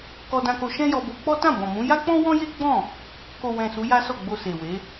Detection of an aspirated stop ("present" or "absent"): absent